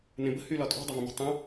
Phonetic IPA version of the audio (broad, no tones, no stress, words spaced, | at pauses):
nẽbə̤ hylɒtʼɔ̤ dˤəvə̃mə̤ tˤə̃